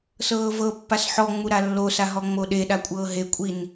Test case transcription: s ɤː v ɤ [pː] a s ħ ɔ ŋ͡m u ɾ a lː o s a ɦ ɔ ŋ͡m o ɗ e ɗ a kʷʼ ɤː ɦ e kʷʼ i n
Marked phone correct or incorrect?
correct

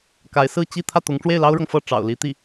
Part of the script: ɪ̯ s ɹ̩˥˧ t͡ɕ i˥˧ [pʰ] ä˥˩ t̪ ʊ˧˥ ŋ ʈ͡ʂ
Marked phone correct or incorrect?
incorrect: t̪ʰ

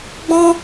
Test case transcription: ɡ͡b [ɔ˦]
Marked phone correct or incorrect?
incorrect: ɔ̃˦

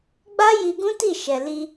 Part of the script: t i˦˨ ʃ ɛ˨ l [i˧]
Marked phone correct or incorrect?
correct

